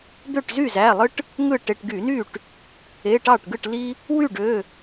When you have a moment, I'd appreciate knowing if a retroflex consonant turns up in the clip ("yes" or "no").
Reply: yes